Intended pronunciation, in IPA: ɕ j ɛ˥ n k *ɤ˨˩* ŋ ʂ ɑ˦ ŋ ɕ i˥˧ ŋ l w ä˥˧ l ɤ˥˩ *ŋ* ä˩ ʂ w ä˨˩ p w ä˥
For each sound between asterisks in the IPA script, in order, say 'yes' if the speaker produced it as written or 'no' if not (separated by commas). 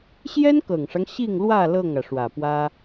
yes, yes